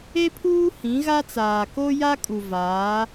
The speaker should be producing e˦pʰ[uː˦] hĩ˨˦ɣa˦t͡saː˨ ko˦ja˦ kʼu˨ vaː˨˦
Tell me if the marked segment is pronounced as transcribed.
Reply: yes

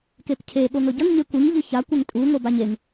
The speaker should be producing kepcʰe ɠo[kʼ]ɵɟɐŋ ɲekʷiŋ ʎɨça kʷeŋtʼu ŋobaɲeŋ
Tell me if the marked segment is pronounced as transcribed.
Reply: no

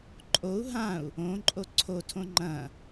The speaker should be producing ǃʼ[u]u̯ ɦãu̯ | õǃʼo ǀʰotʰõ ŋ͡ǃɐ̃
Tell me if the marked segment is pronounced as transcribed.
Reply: no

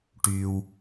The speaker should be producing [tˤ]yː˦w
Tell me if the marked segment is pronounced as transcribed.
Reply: no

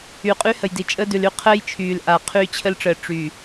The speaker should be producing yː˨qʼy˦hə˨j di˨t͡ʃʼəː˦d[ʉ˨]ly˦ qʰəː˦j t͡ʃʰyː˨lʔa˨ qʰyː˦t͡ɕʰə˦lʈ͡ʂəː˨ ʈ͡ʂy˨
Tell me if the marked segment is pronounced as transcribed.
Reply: yes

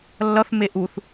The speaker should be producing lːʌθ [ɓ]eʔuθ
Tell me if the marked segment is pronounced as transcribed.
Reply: no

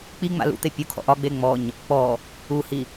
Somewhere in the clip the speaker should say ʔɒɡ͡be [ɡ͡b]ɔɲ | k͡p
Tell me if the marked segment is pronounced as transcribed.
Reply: no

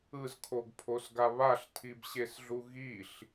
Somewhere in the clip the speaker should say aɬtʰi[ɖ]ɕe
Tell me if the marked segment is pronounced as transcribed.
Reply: no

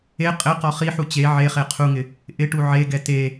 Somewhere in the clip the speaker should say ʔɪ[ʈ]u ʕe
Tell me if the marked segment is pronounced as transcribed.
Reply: yes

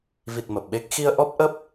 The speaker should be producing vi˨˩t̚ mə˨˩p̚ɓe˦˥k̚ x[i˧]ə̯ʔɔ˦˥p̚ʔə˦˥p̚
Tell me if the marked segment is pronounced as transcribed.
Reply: yes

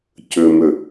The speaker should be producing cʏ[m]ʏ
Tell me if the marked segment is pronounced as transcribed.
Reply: yes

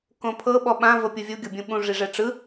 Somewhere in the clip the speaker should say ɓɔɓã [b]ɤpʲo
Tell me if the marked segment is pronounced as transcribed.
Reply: no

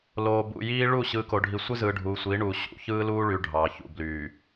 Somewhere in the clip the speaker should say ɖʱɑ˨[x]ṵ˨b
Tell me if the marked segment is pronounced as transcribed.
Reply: no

